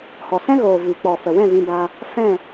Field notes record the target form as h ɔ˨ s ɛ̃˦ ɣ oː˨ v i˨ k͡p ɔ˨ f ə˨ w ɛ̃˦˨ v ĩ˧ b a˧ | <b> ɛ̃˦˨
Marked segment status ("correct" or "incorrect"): incorrect